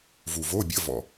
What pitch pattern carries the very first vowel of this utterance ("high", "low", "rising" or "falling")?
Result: low